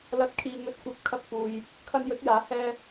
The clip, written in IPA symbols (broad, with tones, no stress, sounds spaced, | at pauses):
l ɐ˨˥ t̚ kʰ iː˨ ŋ ɵ˨˥ t̚ kʷ ɐ˨˥ p̚ kʰ ɐ˧ k̚ f uː˨ j | kʰ ɐ˧ n j ɵ˨˥ t̚ j aː˨˥ h ɛː˧